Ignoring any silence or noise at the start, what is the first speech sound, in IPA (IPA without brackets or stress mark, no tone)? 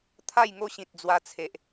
t̪ʰ